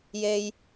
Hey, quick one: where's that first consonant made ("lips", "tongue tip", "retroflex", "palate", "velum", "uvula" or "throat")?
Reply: palate